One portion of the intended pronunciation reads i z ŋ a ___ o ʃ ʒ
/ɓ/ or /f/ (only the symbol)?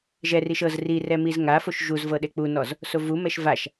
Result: f